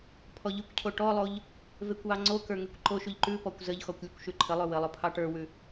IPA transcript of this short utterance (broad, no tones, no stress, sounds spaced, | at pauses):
pʰ ɔ ʎ ʉ kʷ cʰ o ʈ ɔ lˠ o ʎ | v e kʷ w ɑ ŋ͡ǀ o k ə˞ ŋ e kʷ ǃ o ʃ ʉ ʎ ǃ ʉ p ɔ kʷ z ə ʎ x ɔ kʷ lʲ ə kʷ ʃ ʉ ǃʰ ə lˠ ʉ w ə lˠ o pʰ ɑ ʈ ə˞ w ʉ